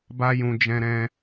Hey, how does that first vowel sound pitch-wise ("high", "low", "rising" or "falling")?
high